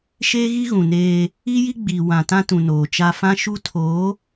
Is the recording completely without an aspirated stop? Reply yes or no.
no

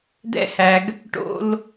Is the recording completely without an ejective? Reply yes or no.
yes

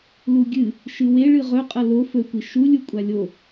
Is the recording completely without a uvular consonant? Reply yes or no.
no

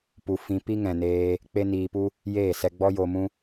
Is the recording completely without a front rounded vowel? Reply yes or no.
yes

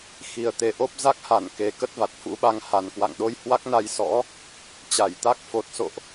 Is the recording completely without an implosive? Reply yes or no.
no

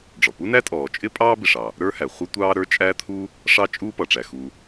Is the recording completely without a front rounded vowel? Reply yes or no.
yes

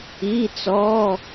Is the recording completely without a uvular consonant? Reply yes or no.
yes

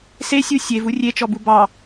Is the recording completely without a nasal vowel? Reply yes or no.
yes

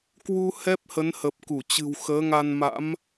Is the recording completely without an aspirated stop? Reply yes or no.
yes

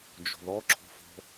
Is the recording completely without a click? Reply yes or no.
no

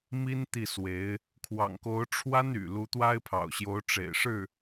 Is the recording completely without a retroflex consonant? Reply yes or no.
no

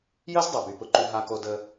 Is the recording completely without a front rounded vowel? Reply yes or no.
no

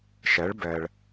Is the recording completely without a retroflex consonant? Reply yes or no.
no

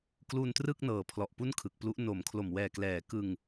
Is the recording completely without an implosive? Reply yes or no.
yes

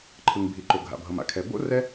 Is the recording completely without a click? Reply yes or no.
no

